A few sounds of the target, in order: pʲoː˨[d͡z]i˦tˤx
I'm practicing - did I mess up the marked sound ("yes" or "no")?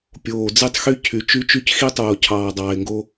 no